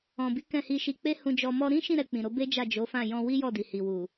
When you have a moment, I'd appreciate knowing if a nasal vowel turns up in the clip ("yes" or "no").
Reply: yes